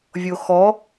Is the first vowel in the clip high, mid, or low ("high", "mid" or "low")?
mid